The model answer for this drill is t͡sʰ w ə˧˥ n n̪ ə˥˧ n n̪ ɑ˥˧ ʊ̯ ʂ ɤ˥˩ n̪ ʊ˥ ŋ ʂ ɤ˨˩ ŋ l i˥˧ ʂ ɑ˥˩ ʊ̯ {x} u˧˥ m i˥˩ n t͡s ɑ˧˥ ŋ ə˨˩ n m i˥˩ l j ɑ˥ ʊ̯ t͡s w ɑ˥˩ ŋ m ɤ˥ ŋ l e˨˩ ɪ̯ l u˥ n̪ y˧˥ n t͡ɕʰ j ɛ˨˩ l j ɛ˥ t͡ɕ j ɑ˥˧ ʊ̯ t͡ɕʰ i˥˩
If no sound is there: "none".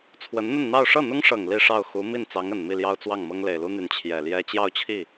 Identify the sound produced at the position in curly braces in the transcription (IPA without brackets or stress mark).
x